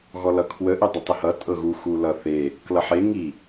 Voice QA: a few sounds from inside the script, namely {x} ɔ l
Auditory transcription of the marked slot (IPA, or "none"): ɣ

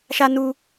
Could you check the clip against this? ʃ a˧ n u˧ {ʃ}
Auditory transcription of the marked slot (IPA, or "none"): none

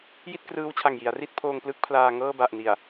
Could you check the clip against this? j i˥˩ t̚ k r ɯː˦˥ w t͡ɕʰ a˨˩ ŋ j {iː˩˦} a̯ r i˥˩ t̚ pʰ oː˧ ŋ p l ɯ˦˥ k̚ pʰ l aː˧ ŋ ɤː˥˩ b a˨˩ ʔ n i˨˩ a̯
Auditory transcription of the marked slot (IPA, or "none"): i˩˦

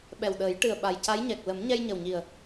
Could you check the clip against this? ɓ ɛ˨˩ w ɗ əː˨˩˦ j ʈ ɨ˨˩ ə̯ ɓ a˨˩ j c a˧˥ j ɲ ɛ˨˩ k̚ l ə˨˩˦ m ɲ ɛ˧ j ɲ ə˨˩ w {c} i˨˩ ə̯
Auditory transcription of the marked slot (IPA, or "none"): ɲ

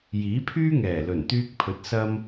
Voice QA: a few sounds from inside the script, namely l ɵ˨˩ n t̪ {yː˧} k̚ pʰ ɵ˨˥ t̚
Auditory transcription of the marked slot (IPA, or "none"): yː˧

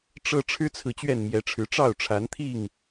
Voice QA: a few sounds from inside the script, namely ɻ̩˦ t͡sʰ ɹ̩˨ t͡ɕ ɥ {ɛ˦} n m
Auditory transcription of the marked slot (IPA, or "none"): ɛ˥˨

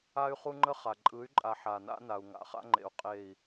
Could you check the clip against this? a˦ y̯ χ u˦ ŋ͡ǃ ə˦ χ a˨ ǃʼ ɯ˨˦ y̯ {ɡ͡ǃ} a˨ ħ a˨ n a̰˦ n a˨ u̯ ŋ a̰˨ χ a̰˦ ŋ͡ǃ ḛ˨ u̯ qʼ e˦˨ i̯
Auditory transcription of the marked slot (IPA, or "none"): ǃʼ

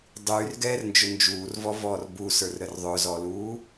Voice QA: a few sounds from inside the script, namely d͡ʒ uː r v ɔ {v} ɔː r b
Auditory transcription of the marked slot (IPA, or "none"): v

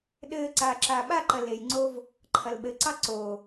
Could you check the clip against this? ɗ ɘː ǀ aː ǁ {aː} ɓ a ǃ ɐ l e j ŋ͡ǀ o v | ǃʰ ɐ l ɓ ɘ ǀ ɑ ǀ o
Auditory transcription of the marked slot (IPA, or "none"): aː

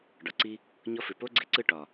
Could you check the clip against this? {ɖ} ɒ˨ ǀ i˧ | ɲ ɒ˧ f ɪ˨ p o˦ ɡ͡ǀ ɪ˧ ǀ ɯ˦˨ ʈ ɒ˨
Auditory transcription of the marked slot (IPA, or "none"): ɖ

